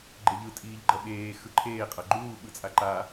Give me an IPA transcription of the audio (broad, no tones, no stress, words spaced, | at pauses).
ɡ͡ǃeʎɯ tʼiːʎɡ͡ǃʌɓeː xɯǃʰeː qʼʌɡ͡ǃuː ɓɯt͡sʼaǃa